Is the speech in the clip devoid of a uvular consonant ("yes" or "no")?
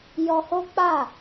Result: yes